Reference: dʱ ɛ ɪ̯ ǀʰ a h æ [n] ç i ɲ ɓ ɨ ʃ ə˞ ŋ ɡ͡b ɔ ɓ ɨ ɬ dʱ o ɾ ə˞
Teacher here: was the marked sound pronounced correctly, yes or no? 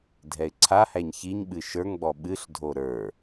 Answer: no